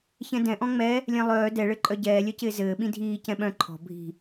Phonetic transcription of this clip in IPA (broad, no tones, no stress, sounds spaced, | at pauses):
ç ɛ̃ d ɛ̃ ʔ ɔ̃ ŋ͡m ɛ | lʲ ɛ̃ lˠ œː d ɛ ɭ ɘ ǃʼ œ ɟ ɛː lʲ œ c ɪː z ɘː ɓ ĩ dʱ iː c ɛ̃ ɓ œ̃ ǃʰ ɔ̤ bʱ i̤